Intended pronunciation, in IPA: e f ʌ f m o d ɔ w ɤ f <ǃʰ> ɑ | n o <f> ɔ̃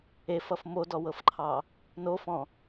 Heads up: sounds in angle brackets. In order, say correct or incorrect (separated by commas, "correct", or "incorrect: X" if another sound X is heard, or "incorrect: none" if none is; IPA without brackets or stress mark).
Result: correct, correct